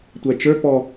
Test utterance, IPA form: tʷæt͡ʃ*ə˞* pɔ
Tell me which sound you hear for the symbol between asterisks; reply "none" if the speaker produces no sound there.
ə˞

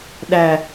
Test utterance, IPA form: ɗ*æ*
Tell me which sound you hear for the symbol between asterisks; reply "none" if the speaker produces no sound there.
æ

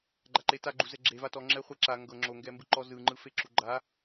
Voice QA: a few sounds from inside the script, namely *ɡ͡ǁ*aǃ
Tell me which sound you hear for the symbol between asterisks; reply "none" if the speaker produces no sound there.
ɡ͡ǃ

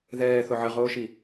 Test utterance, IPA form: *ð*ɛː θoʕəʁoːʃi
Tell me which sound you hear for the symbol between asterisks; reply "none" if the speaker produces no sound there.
ð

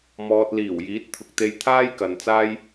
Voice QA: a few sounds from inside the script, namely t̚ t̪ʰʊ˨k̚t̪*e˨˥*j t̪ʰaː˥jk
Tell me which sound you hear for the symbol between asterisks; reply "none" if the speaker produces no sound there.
e˧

